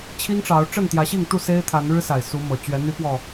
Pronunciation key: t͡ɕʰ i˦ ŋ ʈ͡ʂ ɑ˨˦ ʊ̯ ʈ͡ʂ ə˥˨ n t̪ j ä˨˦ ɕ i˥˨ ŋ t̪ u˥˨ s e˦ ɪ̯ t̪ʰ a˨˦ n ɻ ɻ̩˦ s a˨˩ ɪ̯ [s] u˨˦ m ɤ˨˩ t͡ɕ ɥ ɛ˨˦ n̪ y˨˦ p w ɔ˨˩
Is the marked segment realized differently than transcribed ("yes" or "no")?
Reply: no